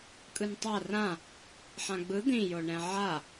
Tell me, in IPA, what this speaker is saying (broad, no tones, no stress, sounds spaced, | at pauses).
kʼ ɯ n tˤ a r ã | ħ ã ɡ͡b ɯ d̪ ĩ j o ɳ ɛ̃ ʕ a